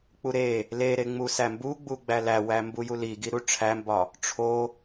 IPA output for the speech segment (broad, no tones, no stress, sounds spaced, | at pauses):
k͡p u ɾ e | l e ɾ e ŋ͡m u s æ m b u ɡ͡b u ɡ͡b æ l æ w æ m b u j u l i ɡ i ɾ u ʈ͡ʂʰ æ m b ɒ | ʈ͡ʂʰ o